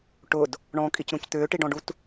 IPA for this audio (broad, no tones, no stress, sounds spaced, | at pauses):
ʈ ʊ d | ɳ ɔ̃ kʼ i c ɾ ũ c t̪ ʏː ʈ i ɖ ɔ̃ ɖ u t